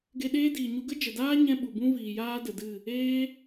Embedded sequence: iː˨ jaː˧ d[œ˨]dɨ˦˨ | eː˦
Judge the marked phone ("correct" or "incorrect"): incorrect